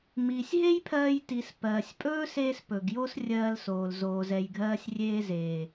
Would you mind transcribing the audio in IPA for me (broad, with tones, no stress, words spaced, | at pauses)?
miː˨sʲɦe˦jpʰɜː˧jti˨s pɜː˨sʲpʼɵː˦seː˧s pɵ˨ɡjo˦srʲɜː˧lsoː˨l zoː˨zɛ˨jɡʱɜː˧sʲ rʲeː˧zeː˨